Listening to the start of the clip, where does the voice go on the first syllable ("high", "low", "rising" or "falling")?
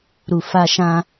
low